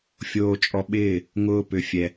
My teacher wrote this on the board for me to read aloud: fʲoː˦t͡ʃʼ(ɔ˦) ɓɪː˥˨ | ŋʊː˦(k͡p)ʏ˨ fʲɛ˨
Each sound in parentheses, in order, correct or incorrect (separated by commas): correct, incorrect